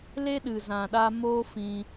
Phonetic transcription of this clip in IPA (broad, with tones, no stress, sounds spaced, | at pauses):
l e˦ ɗ ɨ˨ z ã˨ ɗ a˧ m oː˦ f ĩ˧